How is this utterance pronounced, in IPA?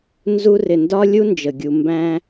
nzu˦rɪ˨ndɒ˥ lʲu˥nd͡ʒə˩ɡʲu˨ mbæ̃˦

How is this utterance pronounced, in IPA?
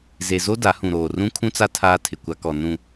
ze˨zo˦ da˨˦hũ˨ɾoː˨ rũ˦kʰũ˦t͡sa˦ tʰaː˦tʰɪ˨kʷa˦kɔ˨ nũ˨

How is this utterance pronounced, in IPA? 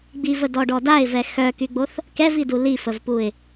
ɡ͡bivədɔɖɔ daɪ̯vɛ xœkyɡ͡boθ | kɛvidu lifəvpuɪ̯

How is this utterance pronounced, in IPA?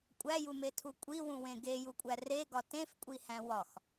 kʷʼæjumetʰu kʷʼiwũwẽ ɡejukʷʼæ reɡɒ tẽfkʷʼihæ̃ wɒx

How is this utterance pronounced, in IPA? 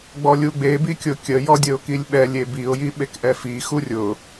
ɡ͡bɔlʲuɡ͡be bikʲʊkʲə jɔdʲəʊ̯kilʲɓɛlʲ ebiʊ̯ jiɓekʔɛfi xurʲʊ

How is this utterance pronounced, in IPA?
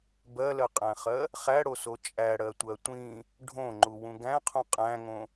bɜlɜqʼæ̃χɜ | χæɽoso t͡ʃʼæɽɜtʷɜ tʷĩ | ɖʱõŋ͡ǃuwũ ɡæ̃qʰũ qʼæ̃ŋõ

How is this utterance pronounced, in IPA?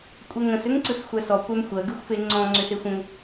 kʷʼəŋə̃s ʏŋǀɯsxʷæsɔ kʷæmxʷɜ ɡɯxʷfeŋ͡ǀɔ̃ ŋ͡ǀʏsexʷə̃ŋ

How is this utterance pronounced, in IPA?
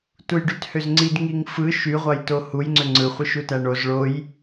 tujɖythøzŋ͡ǀid ŋiŋfɯ ʃy ʁʷɑjtohuj ŋ͡ǀøŋ͡ǀɯχʷɯ ʃutæɳoz ɭoj

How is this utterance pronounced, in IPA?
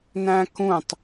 næ̃kũtˤ

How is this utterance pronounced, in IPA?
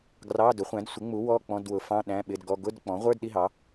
ɡrɑ˧˥˧ dʊ˩˥χʷæ̃˩˥d sʷɪ˩˥ŋ͡mu˩˥ wɔ˧˥˧k͡pɔ̃˧˥˧dwʊ˩˥fɑ̃˧˥˧ ɗæ̃˧˥˧ɓɪ˧˥˧dɡɔ˧˥˧ ɡʊ˧˥˧d k͡pɔ̃˩˥ʁʷə˞˧˥˧d ɗi˧˥˧ɦɑ˩˥

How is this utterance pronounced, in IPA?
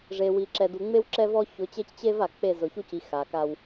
ʐe˨wi˨ ǁɛ˨du˨ŋ͡me˦w ǁɛ˦vɔ˦çʊ˨˦t͡ɕe˦c t͡ɕe˦va˨k͡pe˦˨ zʊ˨çu˦ci˨ xa˨ka˦w

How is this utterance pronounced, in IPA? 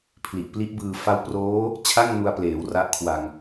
pʰli˨˩ʔpli˦˥ʔbɯː˧ fa˦˥wproː˦˥ | t͡ɕʰa˥˩ŋnu˧a̯pleː˩˦w ra˦˥ʔkʰwa˧ŋ

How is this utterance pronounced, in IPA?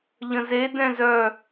ʎə̃ze dɛ̃zœ

